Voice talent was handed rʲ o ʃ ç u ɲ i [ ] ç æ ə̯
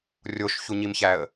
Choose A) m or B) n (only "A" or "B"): A